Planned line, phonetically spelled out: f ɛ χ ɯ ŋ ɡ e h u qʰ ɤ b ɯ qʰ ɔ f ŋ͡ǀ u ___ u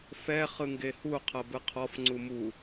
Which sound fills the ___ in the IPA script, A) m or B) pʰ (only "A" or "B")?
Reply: A